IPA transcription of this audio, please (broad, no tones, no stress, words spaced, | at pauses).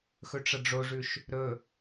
xɵʈ͡ʂɐɖ͡ʐoʐʉʃ | ɾɵ